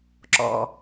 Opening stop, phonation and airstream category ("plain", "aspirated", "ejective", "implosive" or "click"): click